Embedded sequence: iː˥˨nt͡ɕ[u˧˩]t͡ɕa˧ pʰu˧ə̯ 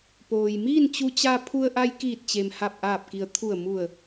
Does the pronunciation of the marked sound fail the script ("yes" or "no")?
yes